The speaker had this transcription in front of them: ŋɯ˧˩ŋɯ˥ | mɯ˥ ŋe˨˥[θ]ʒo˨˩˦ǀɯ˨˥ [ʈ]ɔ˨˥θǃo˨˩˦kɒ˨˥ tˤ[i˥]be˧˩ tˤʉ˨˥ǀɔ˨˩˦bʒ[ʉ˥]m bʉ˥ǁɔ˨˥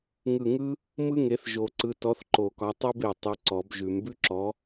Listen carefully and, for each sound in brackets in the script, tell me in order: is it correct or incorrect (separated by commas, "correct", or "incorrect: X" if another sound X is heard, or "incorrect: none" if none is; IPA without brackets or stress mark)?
correct, incorrect: t, correct, incorrect: ʉ˨˩˦